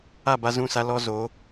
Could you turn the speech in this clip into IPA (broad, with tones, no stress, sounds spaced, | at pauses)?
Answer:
a˦˨ b a˦ z ũ˦˨ s a˦ l ɔ˦ z oː˨˦